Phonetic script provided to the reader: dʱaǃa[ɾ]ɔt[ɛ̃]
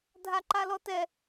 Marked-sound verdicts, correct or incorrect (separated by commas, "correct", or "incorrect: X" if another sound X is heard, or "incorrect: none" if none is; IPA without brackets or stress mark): incorrect: l, incorrect: ɛ